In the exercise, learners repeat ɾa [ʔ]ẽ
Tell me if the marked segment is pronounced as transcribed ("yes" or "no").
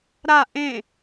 yes